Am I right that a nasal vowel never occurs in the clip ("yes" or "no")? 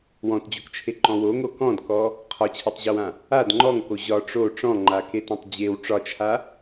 no